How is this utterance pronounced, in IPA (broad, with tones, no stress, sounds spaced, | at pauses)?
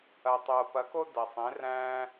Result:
ɐ˩ tˤ oː˩ p ɐ˩˧ k o˧ d ɐ˩ sˤ ẽ˩˧ r æ̃ː˧